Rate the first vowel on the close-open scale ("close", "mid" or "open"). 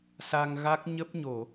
open